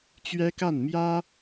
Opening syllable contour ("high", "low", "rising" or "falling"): high